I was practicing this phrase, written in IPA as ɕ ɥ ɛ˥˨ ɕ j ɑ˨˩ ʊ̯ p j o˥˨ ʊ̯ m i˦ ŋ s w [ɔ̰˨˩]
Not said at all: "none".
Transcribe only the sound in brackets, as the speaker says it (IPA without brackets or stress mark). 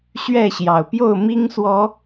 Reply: ɔ˨˦